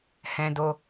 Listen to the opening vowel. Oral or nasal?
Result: nasal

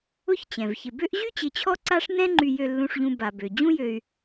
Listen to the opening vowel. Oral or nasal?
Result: oral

